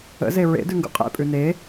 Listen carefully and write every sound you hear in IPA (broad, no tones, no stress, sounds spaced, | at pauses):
ə̰ z e ɹ ḛ d ʉ ŋ ɡ ṵ qʼ ḛ pʼ ʉ n e